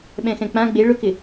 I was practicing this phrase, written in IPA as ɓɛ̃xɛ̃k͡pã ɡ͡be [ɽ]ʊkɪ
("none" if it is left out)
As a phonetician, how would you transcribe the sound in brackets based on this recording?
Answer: ɭ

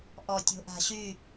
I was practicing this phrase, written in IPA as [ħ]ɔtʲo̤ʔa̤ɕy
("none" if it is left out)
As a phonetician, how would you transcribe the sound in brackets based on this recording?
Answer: ʔ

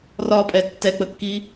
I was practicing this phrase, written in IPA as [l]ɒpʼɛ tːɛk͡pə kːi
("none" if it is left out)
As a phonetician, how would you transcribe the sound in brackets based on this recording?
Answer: r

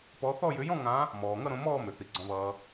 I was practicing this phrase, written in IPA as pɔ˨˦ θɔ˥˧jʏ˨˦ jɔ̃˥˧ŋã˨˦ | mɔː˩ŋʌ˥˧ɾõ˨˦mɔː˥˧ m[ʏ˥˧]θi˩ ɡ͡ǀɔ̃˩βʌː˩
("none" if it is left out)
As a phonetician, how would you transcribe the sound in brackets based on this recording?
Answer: ʏ˩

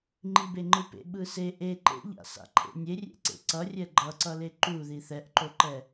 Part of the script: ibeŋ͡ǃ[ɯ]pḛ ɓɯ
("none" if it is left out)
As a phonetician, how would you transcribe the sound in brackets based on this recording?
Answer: ɯ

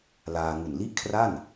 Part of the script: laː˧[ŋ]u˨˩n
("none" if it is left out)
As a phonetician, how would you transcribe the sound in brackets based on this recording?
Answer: ŋ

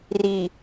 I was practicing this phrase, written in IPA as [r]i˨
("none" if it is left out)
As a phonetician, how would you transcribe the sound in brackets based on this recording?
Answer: r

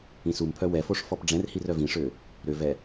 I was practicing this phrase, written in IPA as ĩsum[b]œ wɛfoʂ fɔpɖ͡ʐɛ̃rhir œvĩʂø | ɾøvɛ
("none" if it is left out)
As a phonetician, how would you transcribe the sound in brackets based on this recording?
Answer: pʰ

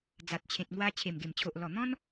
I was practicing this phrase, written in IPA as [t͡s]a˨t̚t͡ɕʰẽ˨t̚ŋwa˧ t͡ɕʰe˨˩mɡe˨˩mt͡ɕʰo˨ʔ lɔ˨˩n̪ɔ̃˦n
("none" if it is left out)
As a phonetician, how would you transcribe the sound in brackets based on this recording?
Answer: d͡z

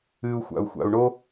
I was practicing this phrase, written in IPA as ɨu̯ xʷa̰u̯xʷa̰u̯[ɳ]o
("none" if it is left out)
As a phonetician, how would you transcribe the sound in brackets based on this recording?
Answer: ɳ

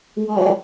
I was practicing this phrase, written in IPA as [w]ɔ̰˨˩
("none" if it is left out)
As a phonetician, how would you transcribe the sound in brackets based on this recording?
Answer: w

